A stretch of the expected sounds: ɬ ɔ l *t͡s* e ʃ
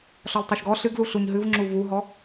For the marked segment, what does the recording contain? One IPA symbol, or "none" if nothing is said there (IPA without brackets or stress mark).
tˤ